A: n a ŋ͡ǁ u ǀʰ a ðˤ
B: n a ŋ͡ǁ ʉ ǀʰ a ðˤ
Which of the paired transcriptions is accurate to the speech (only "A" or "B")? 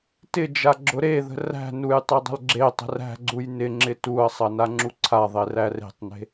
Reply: A